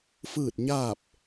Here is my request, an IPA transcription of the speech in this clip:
fɯː˥˨t̚ɲaː˥˨p̚

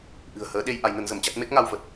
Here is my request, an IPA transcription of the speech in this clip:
ʔɨ̤˨˩ə̯həː˨˦ ɗe˧j ʔa˨˦jnə˨˦nzə˧˩mt͡ɕa˦˥t̚ me˦˥k̚ŋa˧wvə˨˩t̚

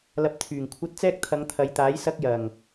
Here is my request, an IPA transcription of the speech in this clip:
lɐ˧p̚t̪ʰyː˨˩ŋkʷʰɐ˥t̚ t͡sɛː˥k̚t̪ʰɐ˨˧ŋt̪ʰɐ˨˧jt̪aː˨˥j sɐ˥k̚jɐ˨˩ŋ

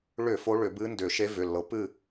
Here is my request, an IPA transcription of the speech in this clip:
ɭʏ˧˩˧ fo˧˥ɭʏ˧˩˧bɨ˧˥ndʏ˧˩˧ ʃe˧˥vʏ˩˧˩lːɤ˩˥pɨ˥˨

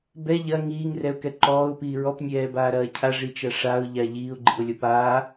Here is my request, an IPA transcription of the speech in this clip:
bɛ ʎɐ ŋiːŋrɛʊ̯kɛ ǃɔːʊ̯piː ɹɔpnʲɛːbaːɾɐː cʰaʐit͡ʃɐ ʂaʊ̯ʎa ʎiːʊ̯ɡ͡ǃḭʊ̯lʲɔp aː

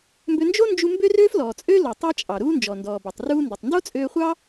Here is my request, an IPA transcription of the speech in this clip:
mbø˧nd͡ʒo˥nd͡ʒu˧ mbø˥røː˥flɔː˩t͡sʼøː˥ lo˩ tˤɑ˥t͡ʃʼɑ˩ɾuː˥ nd͡ʒɔ˩ndɔː˩bo˩tˤ ruː˧ndu˩tˤndo˥ t͡sʼøː˧χʷɑ˥

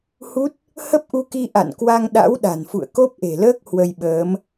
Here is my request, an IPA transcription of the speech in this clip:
hu˦˥t̚ | hə˦˥p̚ʔu˧ki˧ ʔa̰˧˨nkwa˧ŋ ɗa̰˧˥wɗa̤˨˩n fṵ˧˨ə̯ko˦˥p̚ʔe̤˨˩ləː˦˥k̚ hwə˧jɓəː˨˦m

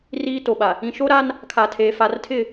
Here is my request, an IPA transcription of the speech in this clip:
riː˦to˨ɓa˨ | ĩ˨ʃo˦ɾa˦n | kʰa˨tʰeː˨ fa˨rtʰɪ˦˨

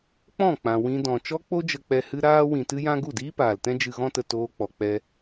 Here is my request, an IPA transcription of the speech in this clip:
k͡pɔ̃˦˨k͡pã˨ wĩ˧dɔ̃˨ t͡ʃɔ˧k͡po˧d͡ʒə˨k͡pɛ˨ hɨ˧ɾaː˧ wĩ˨tɨ˧jã˧ ɡu˦˨diː˦paː˨ltɛ̃˦ d͡ʒɨ˧ɣɔ̃˦tə˧ toː˧k͡pɔ˨k͡pɛ˧

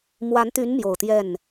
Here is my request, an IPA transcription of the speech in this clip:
mwa˧˥nt̪y˧˥n mjo˨˩ʊ̯t̪jɛ˥˩n

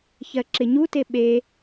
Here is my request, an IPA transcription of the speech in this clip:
çɜǁɪɲute ɓe

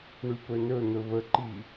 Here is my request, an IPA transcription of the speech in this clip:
ɳypɵnɵ n̪ɵβəǃi

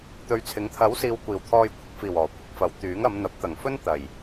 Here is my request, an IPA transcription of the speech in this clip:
t̪ɵ˨˧ɥt͡sʰɪ˨˥ŋ t̪ʰɐ˨˥wsiː˨w kʷiː˨˩wt̪ʰɔː˧jkʷʰɐ˧k̚fiː˨˩w ɔː˨˩ kʷɪ˨˥k̚fɐ˨˥wt̪yː˨˥ŋɐ˨˧m n̪ɐ˨˥p̚t̪ɐ˨˩ŋfɵ˥nt̪ɐ˨˩j

